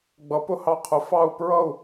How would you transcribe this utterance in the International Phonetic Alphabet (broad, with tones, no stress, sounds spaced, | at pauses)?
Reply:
ɡ͡b ʌ˨˦ p ʊ˧ h ɑ˧ qʰ ʊ˨˦ f ɑ˧ u̯ p ɹ ʌ˦˨ u̯